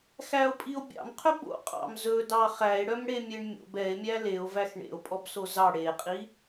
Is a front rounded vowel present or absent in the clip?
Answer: present